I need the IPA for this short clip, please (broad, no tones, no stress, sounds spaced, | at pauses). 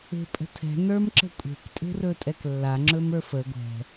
e̤ pʼ ə̤ tʰ ɛ̤ n ə˞ m ǁ ə̤ kʷʼ e̤ k tʼ e̤ r ɵ tʼ ɛ k lː a ŋ͡ǁ ɵ m ə˞ f ə ɡʷ ɛ̤